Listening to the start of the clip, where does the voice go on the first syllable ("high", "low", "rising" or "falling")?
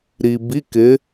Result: low